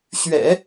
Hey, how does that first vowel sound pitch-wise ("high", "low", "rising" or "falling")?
low